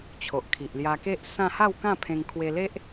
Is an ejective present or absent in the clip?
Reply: absent